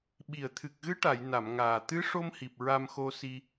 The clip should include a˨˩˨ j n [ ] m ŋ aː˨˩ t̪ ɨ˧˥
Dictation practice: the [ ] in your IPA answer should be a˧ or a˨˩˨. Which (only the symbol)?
a˨˩˨